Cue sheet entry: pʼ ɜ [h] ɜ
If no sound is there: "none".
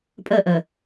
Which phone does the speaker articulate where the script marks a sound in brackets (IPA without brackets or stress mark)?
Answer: ʔ